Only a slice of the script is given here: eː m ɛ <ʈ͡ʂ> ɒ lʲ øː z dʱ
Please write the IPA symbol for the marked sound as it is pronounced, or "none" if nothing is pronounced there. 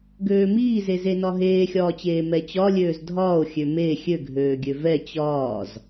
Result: t͡ɕ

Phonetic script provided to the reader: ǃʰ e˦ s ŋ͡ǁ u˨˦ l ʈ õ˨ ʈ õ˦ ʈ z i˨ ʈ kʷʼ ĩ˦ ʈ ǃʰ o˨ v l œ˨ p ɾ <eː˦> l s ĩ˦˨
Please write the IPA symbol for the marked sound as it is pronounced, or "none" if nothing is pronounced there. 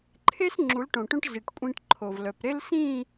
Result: e˦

